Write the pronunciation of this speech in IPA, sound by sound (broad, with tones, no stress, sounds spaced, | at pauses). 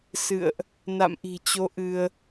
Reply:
s ɨ̰˧˨ ə̯ ʔ | n a̰˧˨ m ʔ i̤˨˩ t͡ɕ o˨˦ ʔ ɨ˧ ə̯